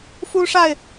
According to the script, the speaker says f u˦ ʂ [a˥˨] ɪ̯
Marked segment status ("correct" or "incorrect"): correct